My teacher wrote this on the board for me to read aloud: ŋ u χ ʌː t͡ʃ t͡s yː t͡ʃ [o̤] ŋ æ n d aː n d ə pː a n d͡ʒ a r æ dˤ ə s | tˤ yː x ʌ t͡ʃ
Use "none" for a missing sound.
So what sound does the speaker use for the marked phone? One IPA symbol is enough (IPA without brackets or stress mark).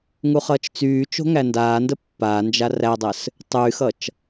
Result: o̤